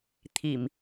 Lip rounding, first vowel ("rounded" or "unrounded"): unrounded